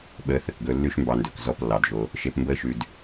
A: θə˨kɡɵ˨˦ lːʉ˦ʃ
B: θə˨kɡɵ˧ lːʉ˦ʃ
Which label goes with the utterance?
B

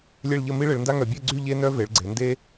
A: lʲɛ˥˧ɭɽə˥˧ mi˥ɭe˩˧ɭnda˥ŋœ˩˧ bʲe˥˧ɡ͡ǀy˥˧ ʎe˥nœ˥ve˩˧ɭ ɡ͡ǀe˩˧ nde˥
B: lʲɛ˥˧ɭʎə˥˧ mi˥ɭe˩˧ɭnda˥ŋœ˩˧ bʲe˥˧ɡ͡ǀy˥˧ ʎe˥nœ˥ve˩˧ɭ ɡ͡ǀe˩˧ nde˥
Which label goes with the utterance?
B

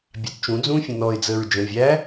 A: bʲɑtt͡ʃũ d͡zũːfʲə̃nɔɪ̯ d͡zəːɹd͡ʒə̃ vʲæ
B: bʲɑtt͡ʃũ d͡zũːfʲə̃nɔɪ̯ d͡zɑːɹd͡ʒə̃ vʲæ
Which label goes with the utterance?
A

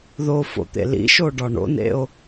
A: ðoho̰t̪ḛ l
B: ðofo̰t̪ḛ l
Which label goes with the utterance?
B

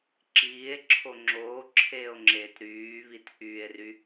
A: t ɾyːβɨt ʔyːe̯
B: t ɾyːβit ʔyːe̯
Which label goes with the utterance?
B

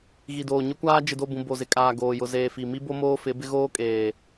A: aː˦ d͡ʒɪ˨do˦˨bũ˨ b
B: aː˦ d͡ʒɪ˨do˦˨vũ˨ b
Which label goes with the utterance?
A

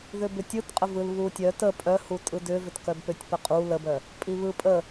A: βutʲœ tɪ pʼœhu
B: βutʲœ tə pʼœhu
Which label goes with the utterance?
B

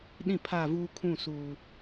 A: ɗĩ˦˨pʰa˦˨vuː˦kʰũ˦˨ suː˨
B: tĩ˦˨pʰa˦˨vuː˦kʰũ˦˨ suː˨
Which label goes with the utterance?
A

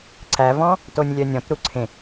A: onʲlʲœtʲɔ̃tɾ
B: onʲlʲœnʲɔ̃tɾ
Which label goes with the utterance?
B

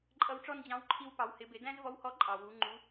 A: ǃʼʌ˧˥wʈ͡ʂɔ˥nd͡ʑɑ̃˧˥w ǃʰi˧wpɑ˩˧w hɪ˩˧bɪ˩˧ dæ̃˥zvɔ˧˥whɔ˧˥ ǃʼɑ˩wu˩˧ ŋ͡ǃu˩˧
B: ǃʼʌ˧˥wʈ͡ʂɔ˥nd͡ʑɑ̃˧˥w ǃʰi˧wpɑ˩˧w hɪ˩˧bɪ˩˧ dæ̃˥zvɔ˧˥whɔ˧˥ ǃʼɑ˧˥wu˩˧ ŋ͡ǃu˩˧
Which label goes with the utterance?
A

